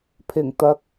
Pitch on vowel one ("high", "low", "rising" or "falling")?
low